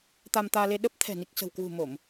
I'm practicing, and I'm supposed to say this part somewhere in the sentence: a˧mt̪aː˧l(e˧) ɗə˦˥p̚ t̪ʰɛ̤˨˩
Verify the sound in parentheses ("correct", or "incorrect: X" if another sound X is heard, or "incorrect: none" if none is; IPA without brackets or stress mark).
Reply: correct